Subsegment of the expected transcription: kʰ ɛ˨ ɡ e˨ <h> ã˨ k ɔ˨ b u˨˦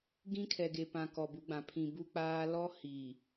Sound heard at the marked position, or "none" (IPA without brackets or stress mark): p